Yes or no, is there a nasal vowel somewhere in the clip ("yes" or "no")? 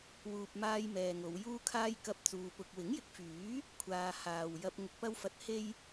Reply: no